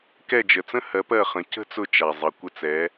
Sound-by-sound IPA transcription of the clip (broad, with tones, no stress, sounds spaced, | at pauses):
k ɛ˦˨ d͡ʒ ə˩ t͡s ə̃˥ h ɜ˨˦ p ɜ˦˨ χ ə̃˨˦ c ə̤˥ t͡s ʊ˦˨ t͡ʃ a˩ zˤ ʌ˩ kʷ ə˦˨ t͡s ɛ˨˦